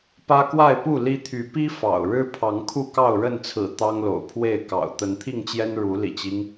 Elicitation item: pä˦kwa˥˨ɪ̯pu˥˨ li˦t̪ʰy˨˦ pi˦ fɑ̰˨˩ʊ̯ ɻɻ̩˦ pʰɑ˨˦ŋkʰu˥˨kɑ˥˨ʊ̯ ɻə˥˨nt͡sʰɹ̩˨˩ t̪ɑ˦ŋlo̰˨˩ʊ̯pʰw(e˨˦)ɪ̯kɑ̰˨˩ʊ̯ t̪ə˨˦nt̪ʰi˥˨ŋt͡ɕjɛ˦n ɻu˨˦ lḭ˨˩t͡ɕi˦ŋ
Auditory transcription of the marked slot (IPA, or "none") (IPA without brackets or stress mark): e˥˨